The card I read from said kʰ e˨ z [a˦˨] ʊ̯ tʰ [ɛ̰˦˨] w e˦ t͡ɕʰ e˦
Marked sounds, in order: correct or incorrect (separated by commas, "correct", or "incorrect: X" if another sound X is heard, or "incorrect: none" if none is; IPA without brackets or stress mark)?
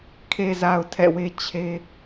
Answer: incorrect: a˨, correct